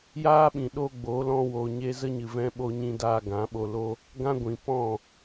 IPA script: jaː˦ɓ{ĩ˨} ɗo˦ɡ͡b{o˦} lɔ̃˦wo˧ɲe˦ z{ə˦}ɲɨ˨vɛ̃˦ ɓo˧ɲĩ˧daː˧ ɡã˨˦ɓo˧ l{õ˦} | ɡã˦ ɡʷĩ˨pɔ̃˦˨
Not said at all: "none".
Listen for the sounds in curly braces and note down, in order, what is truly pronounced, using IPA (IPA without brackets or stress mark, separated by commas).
ĩ˨, o˨˦, ə˦, o˦